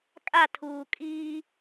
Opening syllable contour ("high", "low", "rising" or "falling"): falling